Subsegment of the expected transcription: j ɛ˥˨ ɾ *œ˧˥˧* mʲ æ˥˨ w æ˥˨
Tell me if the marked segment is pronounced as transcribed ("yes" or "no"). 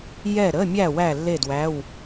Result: no